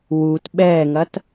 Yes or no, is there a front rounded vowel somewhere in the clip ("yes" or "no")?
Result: no